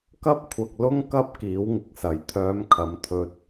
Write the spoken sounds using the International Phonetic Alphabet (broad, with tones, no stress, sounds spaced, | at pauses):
k ɐ˥ p̚ kʷʰ ɐ˧ k̚ l ʊ˥ ŋ k ɐ˥ p̚ k iː˨˥ w ŋ ɪ˨ k̚ s ɐ˨˩ j t̪ʰ œː˨˧ m kʰ ɐ˨ m t̪ʰ ɵ˧ t̚